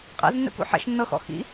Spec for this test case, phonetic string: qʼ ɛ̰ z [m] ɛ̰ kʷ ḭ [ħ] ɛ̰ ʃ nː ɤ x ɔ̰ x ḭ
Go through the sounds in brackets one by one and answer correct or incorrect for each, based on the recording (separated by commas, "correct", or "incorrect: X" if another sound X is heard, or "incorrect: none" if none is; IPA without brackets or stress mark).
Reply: incorrect: nː, correct